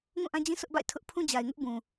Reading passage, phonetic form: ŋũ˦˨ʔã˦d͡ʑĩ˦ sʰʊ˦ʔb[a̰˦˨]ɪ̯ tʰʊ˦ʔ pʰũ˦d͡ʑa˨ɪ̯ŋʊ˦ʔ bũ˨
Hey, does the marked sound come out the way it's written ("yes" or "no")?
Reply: yes